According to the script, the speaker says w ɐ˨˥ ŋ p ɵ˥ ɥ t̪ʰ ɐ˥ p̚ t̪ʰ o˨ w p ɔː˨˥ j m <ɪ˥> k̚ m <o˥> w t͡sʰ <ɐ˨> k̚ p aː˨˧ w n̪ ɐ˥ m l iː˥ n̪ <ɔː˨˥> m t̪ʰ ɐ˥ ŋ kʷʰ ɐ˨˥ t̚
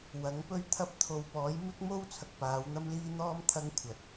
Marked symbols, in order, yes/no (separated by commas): yes, yes, yes, no